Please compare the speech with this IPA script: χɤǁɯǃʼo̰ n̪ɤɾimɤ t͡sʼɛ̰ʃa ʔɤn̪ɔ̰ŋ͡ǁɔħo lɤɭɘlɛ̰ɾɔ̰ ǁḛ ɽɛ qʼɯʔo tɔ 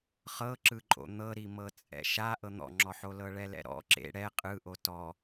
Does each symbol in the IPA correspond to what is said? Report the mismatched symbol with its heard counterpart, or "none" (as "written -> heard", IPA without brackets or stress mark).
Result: ɘ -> ɛ